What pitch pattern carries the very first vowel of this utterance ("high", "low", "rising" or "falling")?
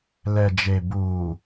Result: low